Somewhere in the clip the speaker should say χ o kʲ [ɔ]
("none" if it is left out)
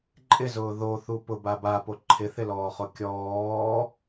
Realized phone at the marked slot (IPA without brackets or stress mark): ɔː